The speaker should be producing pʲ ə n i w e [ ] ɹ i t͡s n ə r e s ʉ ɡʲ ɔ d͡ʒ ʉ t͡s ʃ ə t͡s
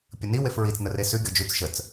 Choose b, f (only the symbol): f